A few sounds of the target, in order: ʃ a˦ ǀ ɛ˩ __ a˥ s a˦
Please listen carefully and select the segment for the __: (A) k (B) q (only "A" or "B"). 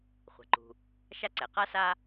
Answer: B